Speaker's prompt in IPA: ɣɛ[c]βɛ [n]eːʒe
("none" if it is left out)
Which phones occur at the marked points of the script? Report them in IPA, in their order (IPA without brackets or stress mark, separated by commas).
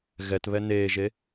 t, n